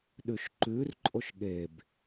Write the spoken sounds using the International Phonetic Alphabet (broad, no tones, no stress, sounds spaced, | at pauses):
ɗ ʉ ʃ ǃ ʉ r ǃʼ o ʃ ɠ e b